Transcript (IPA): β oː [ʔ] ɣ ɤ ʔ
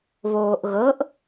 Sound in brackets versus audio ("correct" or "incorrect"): correct